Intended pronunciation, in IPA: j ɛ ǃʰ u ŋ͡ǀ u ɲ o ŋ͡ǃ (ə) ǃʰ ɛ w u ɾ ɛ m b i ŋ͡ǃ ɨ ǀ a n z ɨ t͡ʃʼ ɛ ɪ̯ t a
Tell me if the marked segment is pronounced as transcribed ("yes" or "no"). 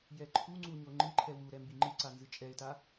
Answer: no